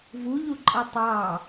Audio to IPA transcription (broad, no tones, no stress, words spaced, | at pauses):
vuʎuǃʼʌ tˤɑ